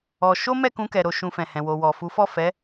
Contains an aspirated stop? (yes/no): no